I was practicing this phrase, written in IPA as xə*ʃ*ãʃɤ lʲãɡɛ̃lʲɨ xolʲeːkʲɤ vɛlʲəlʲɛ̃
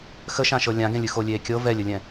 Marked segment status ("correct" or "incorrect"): correct